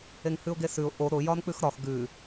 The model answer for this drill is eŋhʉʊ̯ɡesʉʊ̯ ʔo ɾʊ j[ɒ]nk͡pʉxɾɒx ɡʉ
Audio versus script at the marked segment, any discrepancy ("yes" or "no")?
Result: no